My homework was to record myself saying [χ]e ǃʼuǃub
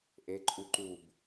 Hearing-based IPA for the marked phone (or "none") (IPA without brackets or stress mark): ʔ